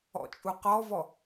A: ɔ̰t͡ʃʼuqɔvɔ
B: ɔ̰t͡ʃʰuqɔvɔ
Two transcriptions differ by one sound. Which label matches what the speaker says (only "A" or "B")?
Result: A